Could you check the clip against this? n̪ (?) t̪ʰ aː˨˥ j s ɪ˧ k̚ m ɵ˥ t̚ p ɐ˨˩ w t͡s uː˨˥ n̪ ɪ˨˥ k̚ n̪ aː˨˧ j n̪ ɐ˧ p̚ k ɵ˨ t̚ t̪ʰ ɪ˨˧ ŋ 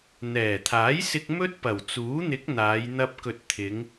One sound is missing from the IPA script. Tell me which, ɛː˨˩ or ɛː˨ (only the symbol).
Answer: ɛː˨˩